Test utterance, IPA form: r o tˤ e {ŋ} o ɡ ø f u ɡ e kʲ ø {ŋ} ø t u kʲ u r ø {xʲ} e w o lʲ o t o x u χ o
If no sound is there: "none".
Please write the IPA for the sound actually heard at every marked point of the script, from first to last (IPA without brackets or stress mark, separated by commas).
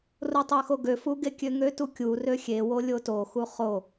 x, ŋ, xʲ